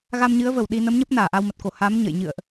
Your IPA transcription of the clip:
ɣa˧mɲɨ˨˦ə̯və˧˩w ɗi˧ nə˨˦mɲə˦˥p̚ naː˧˩ʔa˧wmə˨˩t̚ko˧˩ ha˨˦m ɲə̰˧˨jɲɨ̰˧˨ə̯ʔ

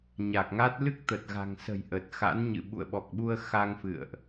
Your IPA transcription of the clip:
ɲa˨˩k̚ŋa˦˥t̚ lɨ˦˥k̚t̪ə˨˩t̚ɣa̤˨˩ŋsə̤˨˩j ʔə˨˩t̚ xa̰˧˥nɲɨ̰˧˨ɓṵ˧˨ə̯ ɓɔ˨˩k̚ɓu˧ə̯ xa˧ŋfɨ̰˧˨ə̯ʔ

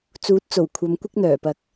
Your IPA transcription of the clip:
t͡suː˨˥t̚t͡so˨˩w kʷʰɐ˨˧mkʷɪ˥k̚n̪œː˨˩pɐ˨k̚

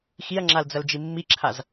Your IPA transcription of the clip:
xiɐ̯ŋ͡ǁald͡zɐld͡ʒi mːiǁʰaz

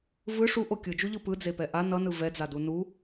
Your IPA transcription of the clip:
vɯ ʂuʔo kʲɯd͡ʒuʎɯ pɯd͡zepɛ ʔa nʌnɯ vɛd͡zadu nu

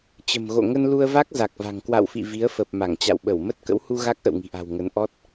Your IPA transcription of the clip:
t͡ɕə̤˨˩mɣo̰˧˨ ŋə˧nlu˧ə̯va˦˥k̚ za˨˩k̚va̤˨˩ŋ kwa̰˧˨wfḭ˧˨ vi˨˦ə̯fə˨˩p̚ ma˧˩ŋt͡ɕa̰˧˨wɓə˧˩w mə˦˥t̚kə̰˧˥whu˧ ɣa˦˥k̚ʔə̰˧˨wŋi̤˨˩ʔa̤˨˩w ŋə˨˦nʔɔ˦˥t̚

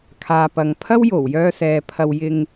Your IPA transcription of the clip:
kʰaː˨pɐ˨ŋpʰɐ˥w jo˨˩wjœː˧ sɛː˨pʰɐ˧wjɪ˧ŋ

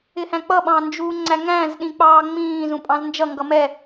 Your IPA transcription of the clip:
ɪhæ̃k͡pʌ ɓɑ̃nd͡ʒuːŋ͡ǀæŋæ̃z ɗĩk͡pɑːŋ͡mĩː zũpʼɑ̃znd͡ʒʌ ŋɡʌmɛ

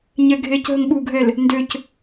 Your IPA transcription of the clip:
ɲɛɡʱec ɦəŋɓuɡʱɛl | ndøc

